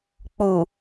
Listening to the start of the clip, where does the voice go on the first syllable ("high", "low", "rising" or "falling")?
low